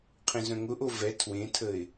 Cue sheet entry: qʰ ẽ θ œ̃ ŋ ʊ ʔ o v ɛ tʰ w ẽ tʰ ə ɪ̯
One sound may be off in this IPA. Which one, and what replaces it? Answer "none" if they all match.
θ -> z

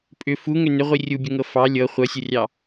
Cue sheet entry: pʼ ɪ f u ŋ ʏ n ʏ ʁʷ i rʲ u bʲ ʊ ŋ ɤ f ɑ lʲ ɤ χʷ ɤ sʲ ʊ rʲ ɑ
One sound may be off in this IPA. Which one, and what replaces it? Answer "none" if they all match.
ɪ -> ʏ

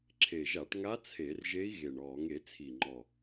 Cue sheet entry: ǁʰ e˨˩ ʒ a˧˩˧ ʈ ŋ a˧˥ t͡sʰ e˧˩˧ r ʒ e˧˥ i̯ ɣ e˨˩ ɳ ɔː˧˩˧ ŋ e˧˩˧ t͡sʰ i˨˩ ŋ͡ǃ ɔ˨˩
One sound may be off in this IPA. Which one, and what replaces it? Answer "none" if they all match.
none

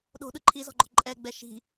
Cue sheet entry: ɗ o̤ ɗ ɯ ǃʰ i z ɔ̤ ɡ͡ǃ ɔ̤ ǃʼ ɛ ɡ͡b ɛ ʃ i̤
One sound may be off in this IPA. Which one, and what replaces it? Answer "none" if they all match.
none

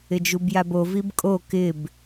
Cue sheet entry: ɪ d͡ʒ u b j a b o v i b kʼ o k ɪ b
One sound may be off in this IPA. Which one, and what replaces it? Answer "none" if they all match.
none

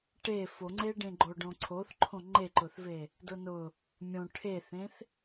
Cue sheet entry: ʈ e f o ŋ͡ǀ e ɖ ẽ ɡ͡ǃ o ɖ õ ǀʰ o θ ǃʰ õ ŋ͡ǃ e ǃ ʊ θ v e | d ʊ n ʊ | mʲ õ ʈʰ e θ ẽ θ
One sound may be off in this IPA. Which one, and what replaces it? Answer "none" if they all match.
none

